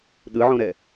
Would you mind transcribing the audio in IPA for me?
ɗɯʕõɾɛ

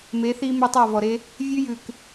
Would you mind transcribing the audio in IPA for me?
me˨˦θi˦mɵ˦tˤɑ˦˨ vɔ˨ɾe˧ | vʲʉ˧jʉ˨k

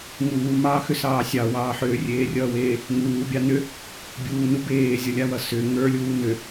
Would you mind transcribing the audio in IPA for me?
ŋuːmɑːxʏsɑː sʲɑwɑː ħʏːrʲeːrʲʌːweː | ŋuːbʲɑ nʏ | bʲuːnu beːzʲʌlʲawʌ sʏ ŋə˞lʲuː nʏ

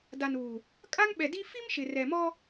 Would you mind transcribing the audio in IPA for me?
da˨nuː˨ | kʼa˦ŋɓɛ˨di˦ fi˦mʃɪ˨rɛ˨mɔ˦

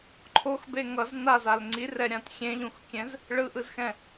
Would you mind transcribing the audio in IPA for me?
ǃʰoxbe ŋʌz nazal ŋ͡ǀirɛɾʲãt xʲẽʎũxkʲɛ̃z | ɭɯʔɯzxɛ̃

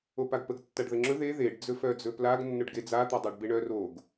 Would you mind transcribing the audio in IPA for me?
opaɡpəɡ tːaɖðəŋ͡ǁɵ ðe ðeɖ d͡zɵfœd͡zɵplaɡ nːɵɖɡed͡za t̪adˤœɖbeɳœ roɡ

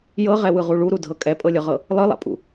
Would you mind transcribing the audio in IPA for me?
jɤʁɛwɯʁu ɭuɾudʱɤ kʼɛpʼɤlʲɤʁɤ | lˠɯlˠa̰pʼṵ

